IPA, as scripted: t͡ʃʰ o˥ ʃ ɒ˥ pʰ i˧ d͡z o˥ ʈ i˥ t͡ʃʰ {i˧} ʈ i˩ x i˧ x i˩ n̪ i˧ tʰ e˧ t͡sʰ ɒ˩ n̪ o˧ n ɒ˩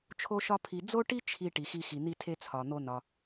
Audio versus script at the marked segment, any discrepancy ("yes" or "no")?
no